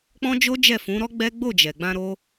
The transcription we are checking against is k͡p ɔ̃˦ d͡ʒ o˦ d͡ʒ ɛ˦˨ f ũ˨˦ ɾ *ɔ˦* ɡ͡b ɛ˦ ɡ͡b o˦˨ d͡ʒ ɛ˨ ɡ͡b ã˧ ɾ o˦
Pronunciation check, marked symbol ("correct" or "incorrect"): correct